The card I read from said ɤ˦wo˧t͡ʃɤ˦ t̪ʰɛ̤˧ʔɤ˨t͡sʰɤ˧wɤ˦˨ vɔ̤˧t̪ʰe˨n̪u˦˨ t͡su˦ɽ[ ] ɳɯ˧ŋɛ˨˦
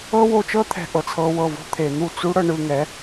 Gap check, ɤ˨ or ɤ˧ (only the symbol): ɤ˧